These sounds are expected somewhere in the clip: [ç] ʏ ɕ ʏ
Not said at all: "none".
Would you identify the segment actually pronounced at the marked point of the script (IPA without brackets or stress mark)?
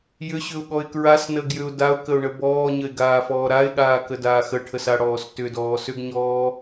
j